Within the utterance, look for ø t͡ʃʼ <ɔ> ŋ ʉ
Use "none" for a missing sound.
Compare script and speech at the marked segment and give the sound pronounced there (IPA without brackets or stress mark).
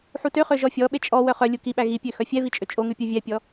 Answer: o